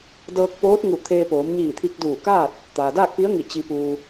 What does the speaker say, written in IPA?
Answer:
d ɤː˧ k̚ p oː˧˥ t̚ ŋ u˧˩ t̪ʰ eː˧ p oː˩˧ m ɲ iː˧˩ t̪ʰ i˧ k̚ d uː˧˩ k aː˥˨ t̚ | t̪ aː˩ d aː˥˨ k̚ p i˧˥ ə̯ ŋ i˧˩ t͡ɕ i˧ p uː˧

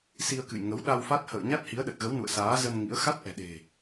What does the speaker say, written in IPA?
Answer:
s i˧ ə̯ k ɨ̰˧˨ j ŋ ə˨˦ w ɗ a˧ w f a˦˥ t̚ h ə̰ː˧˨ ɲ a˦˥ t̚ h i˨˦ ə̯ ɗ ə˨˩ t̚ ɣ ə˨˦ w n ṵ˧˨ ə̯ s aː˨˦ z ə˧ n ŋ ḭ˧˥ ə̯ x a˦˥ t̚ ʔ ɛ̤˨˩ ɗ e̤˨˩

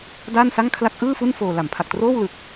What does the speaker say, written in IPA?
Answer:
d aː˥˩ n s a˥˩ ŋ kʰ l a˦˥ k̚ ʔ ɯː˥˩ f u˥˩ n f oː˧ l a˩˦ m pʰ a˨˩ k̚ t r oː˥˩ w l ɯ˨˩ k̚

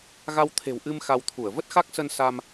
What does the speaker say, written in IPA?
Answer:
ɣ a˧ w t̪ʰ e̤˨˩ w ʔ ɨ˧ m x a˧ w t̪ʰ u˧˩ ə̯ v ə˦˥ t̚ x a˦˥ k̚ s ə˧ n s a˧ m

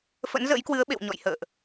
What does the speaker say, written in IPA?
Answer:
f ə̰˧˥ n z ə̰˧˥ j k w ɨ˨˦ ə̯ ɓ ḛ˧˨ w ɲ ɔ̰˧˨ j h ə̰ː˧˨ ʔ

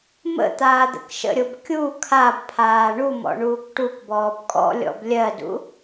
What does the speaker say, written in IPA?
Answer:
m ə̰ t̪ aː d̪ ə̰ k ʃ ə̰ ɾʲ o b kʲ u kʰ a b pʰ aː ɳ u m ɔ̰ ɳ uː k ʈ u k b ɔː b kʼ ɔ̰ lʲ ɔ̰ b lʲ ɜ d ṵ

